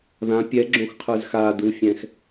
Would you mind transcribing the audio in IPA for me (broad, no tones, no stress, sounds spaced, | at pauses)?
ð ã pʲ ɛ ɡ͡ǁ õ x qʰ ə˞ z x a d u fʲ ɛ̃ x